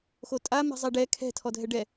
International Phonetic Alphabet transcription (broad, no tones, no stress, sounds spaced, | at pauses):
x o tʼ a m e̤ zˤ ɛ ɖ ɛ kʰ ɛ̤ tʰ ɔ dʱ ɛ ɖ ɛ